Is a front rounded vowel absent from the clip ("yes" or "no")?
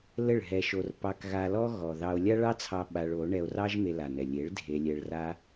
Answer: yes